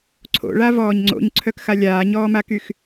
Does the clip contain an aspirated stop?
yes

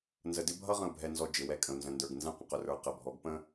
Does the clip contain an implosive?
no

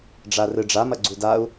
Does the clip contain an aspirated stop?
no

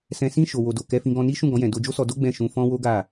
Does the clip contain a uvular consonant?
no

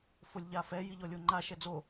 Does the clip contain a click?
yes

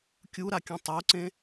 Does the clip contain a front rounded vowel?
no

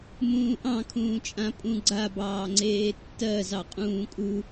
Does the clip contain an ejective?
yes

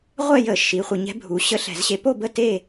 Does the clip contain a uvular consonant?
yes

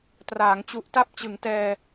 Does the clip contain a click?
no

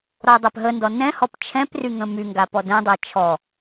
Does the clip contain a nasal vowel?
yes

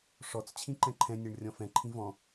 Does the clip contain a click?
yes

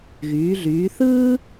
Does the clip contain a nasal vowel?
no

